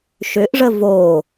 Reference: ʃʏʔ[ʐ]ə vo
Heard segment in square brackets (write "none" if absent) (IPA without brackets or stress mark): ʐ